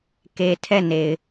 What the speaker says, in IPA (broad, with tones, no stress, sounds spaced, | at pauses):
k e˦ tʰ ɛ˦˨ n e˨ ɪ̯